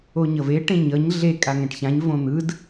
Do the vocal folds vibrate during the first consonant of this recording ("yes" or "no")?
yes